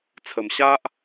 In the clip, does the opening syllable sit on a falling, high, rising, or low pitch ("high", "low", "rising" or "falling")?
low